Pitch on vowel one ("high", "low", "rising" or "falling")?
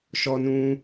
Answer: high